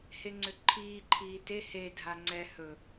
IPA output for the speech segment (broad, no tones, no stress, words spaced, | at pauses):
heŋ͡ǀʏǃʰiː ǃʰiːte he dʱaŋ͡ǀɛ hɵ